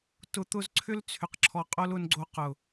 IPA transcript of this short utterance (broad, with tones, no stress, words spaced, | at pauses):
tʊ˨t̪ʊ˧zǀʰʏ˦l t͡sʰʏ˨qǁʰɔ˨ qʼo˦l ʊ˧nɡ͡ǀo˧ qʊ˨